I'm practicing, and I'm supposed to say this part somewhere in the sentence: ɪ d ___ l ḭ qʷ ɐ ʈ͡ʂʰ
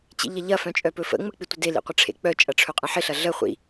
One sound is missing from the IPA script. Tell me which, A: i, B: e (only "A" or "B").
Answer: B